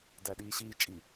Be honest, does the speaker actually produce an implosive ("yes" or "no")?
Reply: yes